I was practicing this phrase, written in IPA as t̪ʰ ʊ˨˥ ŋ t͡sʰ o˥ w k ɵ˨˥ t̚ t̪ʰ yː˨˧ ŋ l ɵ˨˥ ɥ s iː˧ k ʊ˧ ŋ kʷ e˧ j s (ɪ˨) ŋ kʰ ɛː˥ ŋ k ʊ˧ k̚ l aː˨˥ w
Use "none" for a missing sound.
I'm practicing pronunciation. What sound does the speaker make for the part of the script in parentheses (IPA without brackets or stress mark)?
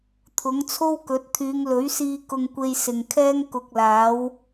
ɪ˨